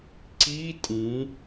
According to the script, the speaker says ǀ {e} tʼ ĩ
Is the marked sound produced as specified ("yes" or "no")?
no